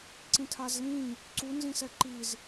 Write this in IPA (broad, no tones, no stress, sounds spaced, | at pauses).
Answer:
ǀ ĩ tʰ a z l ĩ | ǀ u n z ĩ s ɛ ǃ i z